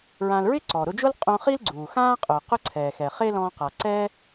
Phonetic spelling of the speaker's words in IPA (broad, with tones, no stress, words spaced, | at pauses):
ɹã˧l ɹɪ˥ǀɔ˩ɾʊ˧d͡ʒʊː˥l qʼõ˧χi˥l ɡ͡ǀuː˩xãː˥qʼʊː˩ qʊ˥ǀʰɛː˩xɛ˩ χe˥lɔ̃ː˧qa˩ ǀɛː˥